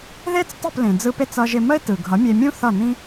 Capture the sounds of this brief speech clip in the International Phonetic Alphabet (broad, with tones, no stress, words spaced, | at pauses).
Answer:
ðe˥t͡s tˤɯ˥˩plẽ˩d͡zɯ˧pe˥˩t͡s ʌ˧ʒɪ˧ mə˥ɪ̯tɯ˩ ɡʱʌ˩˥mʲe˧mʲũ˥ θʌ˥˩nĩ˥